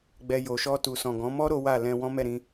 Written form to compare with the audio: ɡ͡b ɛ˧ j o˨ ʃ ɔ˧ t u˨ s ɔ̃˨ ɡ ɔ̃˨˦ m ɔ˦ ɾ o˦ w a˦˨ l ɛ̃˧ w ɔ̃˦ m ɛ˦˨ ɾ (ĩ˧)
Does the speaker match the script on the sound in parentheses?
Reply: yes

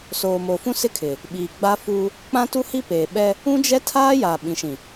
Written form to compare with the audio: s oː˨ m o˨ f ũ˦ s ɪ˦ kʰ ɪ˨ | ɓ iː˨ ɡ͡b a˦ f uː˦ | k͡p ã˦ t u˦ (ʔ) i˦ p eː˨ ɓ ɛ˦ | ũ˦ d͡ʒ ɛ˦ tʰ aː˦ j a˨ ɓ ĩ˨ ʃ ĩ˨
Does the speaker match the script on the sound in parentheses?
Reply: no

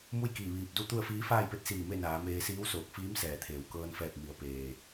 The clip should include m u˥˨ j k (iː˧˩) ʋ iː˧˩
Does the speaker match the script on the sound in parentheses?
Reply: yes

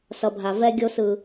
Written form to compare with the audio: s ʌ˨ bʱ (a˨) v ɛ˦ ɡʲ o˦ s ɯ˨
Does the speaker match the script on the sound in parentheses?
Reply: yes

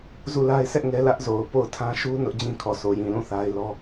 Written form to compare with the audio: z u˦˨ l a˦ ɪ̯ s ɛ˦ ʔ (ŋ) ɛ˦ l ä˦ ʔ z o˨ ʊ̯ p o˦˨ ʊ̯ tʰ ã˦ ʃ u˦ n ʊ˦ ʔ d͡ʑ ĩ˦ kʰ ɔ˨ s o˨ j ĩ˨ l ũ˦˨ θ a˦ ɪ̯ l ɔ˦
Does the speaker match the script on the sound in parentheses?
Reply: yes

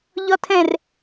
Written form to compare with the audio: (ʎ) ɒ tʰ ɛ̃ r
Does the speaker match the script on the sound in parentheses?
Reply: yes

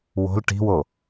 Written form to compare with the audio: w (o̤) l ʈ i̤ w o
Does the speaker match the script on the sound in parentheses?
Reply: yes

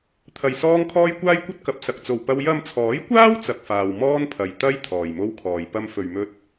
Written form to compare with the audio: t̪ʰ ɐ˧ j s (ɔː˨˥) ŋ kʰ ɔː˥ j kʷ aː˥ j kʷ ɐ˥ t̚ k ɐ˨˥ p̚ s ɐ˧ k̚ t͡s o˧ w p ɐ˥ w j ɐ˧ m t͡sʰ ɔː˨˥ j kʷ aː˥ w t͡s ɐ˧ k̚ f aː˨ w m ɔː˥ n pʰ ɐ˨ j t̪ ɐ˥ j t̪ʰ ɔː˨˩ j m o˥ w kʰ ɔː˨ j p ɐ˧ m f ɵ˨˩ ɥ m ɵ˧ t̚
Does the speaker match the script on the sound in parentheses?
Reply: no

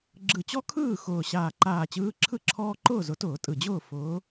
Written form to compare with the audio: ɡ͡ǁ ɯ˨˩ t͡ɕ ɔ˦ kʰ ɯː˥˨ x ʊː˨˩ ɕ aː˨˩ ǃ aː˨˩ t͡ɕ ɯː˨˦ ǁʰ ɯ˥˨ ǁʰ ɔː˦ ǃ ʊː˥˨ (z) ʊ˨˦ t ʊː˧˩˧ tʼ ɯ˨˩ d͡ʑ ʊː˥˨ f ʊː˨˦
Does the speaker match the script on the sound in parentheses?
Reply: yes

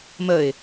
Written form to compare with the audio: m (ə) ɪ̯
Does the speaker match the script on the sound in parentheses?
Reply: yes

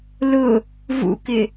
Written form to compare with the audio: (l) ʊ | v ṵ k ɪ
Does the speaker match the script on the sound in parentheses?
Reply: yes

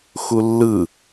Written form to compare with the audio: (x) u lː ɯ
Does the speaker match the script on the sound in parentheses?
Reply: yes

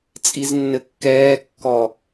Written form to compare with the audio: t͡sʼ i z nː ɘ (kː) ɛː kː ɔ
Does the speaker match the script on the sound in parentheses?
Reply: yes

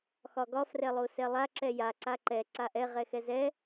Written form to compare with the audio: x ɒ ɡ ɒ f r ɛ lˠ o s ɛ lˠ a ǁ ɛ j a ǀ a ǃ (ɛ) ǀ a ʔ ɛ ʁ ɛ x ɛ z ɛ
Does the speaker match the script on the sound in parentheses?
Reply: yes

